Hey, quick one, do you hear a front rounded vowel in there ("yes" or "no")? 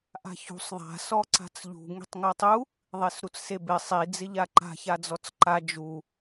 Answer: no